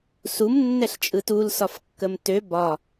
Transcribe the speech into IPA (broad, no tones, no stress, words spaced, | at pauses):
sum nːɛɬt͡ʃʼɯtul sɒfkːəmtø bɒ